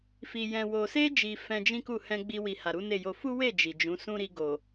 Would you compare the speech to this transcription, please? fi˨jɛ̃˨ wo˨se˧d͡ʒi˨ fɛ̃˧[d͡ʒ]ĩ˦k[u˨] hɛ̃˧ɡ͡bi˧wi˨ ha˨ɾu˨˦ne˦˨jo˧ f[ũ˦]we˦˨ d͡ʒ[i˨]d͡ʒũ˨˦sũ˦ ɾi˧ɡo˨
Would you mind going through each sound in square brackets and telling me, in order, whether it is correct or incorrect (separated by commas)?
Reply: correct, incorrect, incorrect, correct